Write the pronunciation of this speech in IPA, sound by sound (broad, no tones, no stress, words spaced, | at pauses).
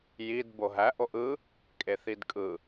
jid boɦæ ʔoʔɯ | kʼeθidkʼɯ